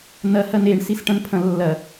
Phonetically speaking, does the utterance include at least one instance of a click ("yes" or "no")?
no